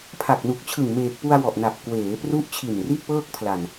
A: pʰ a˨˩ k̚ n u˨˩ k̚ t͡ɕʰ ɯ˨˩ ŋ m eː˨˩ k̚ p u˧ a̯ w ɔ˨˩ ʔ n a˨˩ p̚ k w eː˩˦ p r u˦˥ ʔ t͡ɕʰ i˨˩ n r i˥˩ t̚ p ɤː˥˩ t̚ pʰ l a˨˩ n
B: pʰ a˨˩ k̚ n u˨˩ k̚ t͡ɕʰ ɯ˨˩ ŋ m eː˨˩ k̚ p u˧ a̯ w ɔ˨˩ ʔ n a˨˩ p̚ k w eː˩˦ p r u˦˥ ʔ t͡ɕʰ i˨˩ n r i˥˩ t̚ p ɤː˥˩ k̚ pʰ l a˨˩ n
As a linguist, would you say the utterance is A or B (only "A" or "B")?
B